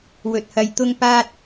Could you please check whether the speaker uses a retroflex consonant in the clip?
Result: no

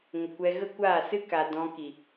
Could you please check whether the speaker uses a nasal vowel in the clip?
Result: yes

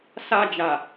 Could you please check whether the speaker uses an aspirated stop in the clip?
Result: no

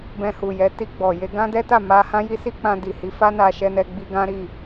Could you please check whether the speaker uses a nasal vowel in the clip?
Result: yes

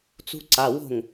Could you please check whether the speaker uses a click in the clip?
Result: yes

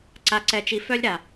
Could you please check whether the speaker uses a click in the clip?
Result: yes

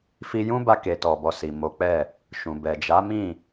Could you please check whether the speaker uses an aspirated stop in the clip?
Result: no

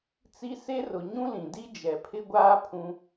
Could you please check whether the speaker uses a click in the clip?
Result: no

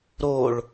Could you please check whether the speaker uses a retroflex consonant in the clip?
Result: yes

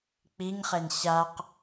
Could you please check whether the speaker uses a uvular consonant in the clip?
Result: yes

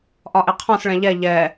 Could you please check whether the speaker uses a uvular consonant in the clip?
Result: yes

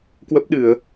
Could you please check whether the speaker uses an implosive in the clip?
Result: yes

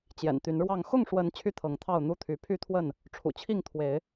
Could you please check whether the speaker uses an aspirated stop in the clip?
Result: yes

